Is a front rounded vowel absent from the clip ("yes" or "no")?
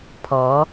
yes